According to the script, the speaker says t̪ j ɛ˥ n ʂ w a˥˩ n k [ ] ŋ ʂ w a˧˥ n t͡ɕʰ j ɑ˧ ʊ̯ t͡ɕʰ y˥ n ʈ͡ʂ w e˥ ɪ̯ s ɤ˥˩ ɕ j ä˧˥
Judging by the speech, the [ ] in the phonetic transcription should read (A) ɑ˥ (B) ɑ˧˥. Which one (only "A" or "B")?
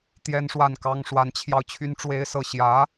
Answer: A